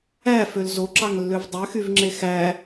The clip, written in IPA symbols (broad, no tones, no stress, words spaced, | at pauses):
æføl zoǁɑŋlːøv dˤøxyvŋ͡ǁe xæ